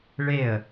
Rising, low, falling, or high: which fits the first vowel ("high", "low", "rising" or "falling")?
falling